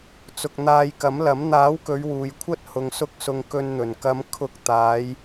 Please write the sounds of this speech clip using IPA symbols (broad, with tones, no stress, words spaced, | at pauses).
t͡sʊ˧k̚ n̪aː˧jkɐ˨˥mlɐ˨˥m n̪aː˨˥wkɵ˨˧ɥ wuː˨jkʷʰɐ˥t̚ hʊ˨ŋsʊ˧k̚ sʊ˨ŋ kɵ˧nn̪ɵ˨˩n kɐ˨˧m kʰʊ˧k̚ t̪aː˨˧j